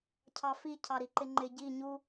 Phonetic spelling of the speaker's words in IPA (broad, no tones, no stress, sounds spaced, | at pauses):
cʰ ɑ f i cʰ ɑ ɾ i ǃ ɪ ŋ͡ǃ ɪ ɟ i ɲ u